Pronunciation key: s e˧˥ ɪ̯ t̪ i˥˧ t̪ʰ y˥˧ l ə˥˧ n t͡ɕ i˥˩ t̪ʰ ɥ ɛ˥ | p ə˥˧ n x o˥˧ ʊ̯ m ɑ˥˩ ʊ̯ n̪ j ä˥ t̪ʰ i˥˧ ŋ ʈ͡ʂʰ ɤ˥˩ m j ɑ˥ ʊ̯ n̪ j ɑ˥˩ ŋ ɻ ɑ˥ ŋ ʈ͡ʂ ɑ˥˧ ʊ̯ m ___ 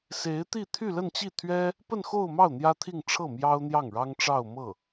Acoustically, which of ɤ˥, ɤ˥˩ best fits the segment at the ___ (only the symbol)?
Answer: ɤ˥˩